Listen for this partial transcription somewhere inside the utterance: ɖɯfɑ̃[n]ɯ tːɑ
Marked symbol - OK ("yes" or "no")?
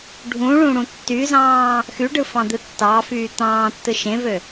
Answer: no